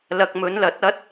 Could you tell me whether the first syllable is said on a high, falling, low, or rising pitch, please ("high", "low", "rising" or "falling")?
low